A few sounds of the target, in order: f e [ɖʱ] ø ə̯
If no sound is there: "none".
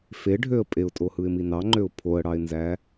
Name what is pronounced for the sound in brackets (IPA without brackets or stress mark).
ɖʱ